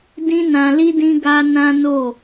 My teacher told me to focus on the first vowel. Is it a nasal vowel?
yes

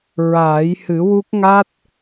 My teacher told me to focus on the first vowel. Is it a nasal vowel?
no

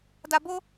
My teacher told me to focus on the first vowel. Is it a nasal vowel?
no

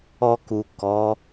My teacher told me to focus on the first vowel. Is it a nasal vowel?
no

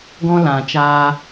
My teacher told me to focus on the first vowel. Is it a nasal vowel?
yes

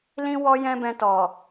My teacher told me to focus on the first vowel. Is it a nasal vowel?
yes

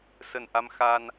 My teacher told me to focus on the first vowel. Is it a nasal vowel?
no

